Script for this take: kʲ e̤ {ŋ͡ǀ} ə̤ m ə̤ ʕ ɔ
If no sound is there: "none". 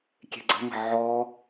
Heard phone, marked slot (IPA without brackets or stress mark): ɡ͡ǀ